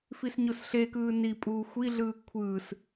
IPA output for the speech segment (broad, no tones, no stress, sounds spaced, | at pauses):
f i s ɲ o s ɬ e k ɯː n i pʼ uː xʷ i ɮ ɯː kʷʰ ɯː s